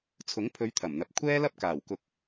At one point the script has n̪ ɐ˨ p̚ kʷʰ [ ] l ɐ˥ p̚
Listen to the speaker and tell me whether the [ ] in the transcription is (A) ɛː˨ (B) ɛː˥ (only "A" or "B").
B